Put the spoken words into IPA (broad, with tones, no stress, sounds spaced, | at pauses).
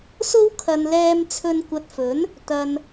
s o˥ w kʰ ɐ˧ n l ɛː˧ m t͡sʰ ɵ˧ n kʷ ɐ˧ t̚ f ɵ˨˥ n | t̪ ɐ˨ n